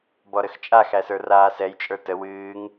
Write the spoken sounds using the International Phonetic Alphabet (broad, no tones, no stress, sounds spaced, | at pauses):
b ɔ ɾ ə x t͡ʃʼ a x æ s ə˞ r aː s ɛ j t͡ʃʼ ə˞ t ə w ɨː ŋ